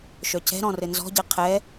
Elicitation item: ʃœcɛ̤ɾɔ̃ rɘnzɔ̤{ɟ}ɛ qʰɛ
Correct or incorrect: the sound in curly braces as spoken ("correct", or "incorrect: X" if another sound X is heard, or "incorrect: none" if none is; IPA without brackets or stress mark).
correct